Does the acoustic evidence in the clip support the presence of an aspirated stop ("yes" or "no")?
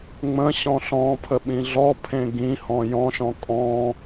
yes